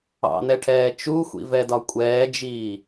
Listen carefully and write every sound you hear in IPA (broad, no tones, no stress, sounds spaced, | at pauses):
ɑ̰ n ɛ ʈʰ ɛː t͡ʃ u xʷ ḭ v ɛ d ɒ kʷʼ ɛː d͡ʒ iː